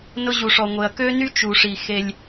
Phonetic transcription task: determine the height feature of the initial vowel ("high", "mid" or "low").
high